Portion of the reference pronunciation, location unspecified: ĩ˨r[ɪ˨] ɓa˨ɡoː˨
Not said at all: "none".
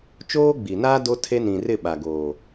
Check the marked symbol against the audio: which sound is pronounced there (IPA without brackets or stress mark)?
ɪ˦˨